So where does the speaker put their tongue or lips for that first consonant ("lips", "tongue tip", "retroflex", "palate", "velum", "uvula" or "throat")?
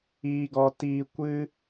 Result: velum